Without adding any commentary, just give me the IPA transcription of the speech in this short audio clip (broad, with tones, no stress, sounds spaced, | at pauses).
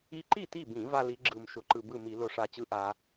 i˧ ǃ i˥˩ t i˥˩ b ĩ˧˩˧ v a˧ l i˩˧ ɡ͡ǁ ɯ˨˩ m ʃ ʊ˧˩˧ ǃ ɯ˨˩ b ɯ˥˩ m i˧˩˧ l ʊ˧˩˧ ʂ a˨˩ t͡ɕ ɯ˦˥ ʔ a˩˧